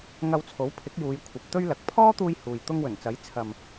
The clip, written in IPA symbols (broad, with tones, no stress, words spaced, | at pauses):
ŋɐ˧wt͡sʰo˨˥wpʰɪ˨˥k̚juː˨˧j kʷʰɐ˨˥p̚t̪ɵ˥ɥlɐ˨˥k̚ pʰɔː˥t̪uː˧j huː˨jt̪ʊ˥ŋ wɵ˨˩nt͡sɐ˨˥j t͡sʰɐ˨m